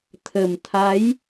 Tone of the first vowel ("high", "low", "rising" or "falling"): low